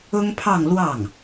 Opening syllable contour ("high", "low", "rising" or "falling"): high